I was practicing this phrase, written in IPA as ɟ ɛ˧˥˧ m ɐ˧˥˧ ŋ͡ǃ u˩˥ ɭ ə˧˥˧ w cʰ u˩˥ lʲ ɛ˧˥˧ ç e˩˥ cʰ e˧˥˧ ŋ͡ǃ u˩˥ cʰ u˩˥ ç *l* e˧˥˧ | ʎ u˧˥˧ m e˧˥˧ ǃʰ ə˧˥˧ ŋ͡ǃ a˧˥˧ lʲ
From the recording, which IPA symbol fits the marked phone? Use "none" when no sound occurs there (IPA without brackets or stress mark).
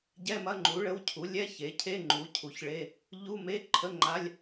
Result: ɭ